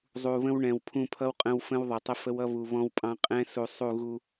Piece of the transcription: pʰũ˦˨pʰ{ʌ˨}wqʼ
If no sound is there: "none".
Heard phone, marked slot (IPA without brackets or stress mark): ʌ˦